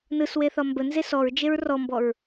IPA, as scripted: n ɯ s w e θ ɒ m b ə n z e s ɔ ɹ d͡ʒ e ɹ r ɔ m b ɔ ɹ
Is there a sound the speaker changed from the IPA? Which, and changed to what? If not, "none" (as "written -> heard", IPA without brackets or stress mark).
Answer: none